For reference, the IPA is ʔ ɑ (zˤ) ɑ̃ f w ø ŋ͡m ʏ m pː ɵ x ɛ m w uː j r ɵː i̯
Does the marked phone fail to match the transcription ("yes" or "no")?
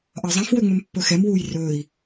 no